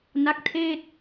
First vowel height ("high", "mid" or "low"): low